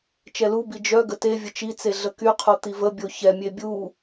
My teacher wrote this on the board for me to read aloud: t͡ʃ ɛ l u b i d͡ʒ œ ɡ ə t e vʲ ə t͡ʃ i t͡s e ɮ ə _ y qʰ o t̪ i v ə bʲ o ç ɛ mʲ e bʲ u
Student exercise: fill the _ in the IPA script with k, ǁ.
k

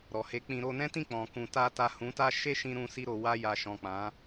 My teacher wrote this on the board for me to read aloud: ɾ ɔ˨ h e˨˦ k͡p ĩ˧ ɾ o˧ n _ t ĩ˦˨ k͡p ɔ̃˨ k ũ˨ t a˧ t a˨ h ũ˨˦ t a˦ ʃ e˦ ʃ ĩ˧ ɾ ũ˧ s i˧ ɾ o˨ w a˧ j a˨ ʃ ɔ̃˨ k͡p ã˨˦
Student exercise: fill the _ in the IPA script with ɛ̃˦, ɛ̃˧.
ɛ̃˦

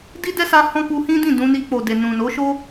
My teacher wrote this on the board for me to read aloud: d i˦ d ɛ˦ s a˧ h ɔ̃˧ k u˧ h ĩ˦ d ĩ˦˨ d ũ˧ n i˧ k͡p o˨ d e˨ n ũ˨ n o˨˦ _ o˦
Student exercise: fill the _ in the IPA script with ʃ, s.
ʃ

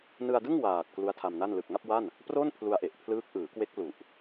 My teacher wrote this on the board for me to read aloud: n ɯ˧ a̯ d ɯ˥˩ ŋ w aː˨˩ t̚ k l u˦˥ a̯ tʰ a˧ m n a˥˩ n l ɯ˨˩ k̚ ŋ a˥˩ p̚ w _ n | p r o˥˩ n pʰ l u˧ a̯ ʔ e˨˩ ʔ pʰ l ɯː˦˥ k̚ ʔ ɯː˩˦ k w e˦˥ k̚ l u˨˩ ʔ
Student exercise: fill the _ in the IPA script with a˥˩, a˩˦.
a˥˩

